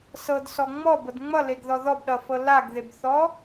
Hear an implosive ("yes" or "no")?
yes